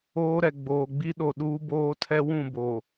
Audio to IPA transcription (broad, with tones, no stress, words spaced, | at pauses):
oː˦ɾɛ˨ ɡ͡boː˨ɡ͡bi˦ɗo˨ ɗuː˦boː˦tʰɛ˦ wũ˦˨bo˨